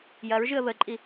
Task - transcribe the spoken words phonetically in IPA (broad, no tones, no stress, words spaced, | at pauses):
jɐɹʒɨə̯ βəǃʼi